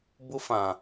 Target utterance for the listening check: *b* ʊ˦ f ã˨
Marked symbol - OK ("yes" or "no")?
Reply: yes